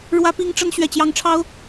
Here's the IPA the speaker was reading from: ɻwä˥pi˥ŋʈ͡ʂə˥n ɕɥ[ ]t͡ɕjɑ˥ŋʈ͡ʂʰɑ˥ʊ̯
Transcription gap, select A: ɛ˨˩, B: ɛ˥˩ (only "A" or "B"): B